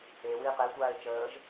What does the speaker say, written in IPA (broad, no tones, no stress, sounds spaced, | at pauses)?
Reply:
e w iː q e tʷ aː e̯ t͡ʃ əː ʒ